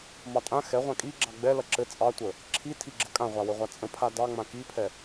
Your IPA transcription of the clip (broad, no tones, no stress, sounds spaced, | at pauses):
m ɑ tʼ ã x ɛ ʁʷ ã kʼ i ɡ͡ǁ ɑ ɡ͡b ɛ l ɐ ǁ ɘ t͡sʼ ɑ tʷ ə | ǁʰ i tʰ i ɡ͡ǁ ə kʼ ã ʁʷ a w ɘ ʁʷ a t͡sʼ ə̃ pʰ a d ɑ ŋ͡m ã k i pʰ ɛ